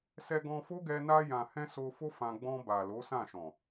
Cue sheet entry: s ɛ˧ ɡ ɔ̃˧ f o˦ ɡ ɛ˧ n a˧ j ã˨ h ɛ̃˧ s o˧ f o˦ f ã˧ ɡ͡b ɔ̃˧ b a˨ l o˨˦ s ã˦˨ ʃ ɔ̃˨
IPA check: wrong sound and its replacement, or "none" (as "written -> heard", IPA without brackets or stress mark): none